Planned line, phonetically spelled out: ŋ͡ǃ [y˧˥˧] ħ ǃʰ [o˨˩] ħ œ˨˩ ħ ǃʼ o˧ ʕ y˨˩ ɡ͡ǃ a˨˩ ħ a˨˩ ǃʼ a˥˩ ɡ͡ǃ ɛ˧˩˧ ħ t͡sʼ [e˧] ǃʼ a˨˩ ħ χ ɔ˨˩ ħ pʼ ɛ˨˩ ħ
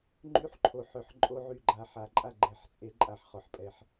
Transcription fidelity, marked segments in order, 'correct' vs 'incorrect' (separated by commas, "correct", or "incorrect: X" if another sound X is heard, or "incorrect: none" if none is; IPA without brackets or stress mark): correct, correct, incorrect: e˧˩˧